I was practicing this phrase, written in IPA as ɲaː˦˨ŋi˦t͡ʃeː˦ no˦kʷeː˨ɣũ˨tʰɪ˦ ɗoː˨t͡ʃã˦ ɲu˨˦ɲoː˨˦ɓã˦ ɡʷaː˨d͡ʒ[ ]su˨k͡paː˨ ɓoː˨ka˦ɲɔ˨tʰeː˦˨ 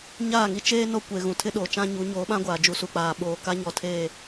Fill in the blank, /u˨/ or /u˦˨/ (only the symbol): u˨